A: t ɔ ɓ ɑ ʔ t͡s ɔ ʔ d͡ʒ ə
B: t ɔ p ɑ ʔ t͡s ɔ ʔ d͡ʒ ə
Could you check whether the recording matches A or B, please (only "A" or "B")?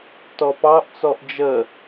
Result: B